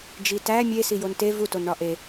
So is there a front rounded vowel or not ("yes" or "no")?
no